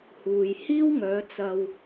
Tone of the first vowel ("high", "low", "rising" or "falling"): low